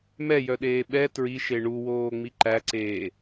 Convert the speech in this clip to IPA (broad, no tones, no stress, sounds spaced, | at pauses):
m ɛ j œ ɗ eː ɓ ɛ t ɹ i ʃ e ɳ u w oː ŋ͡m i ǃ æ ǀ eː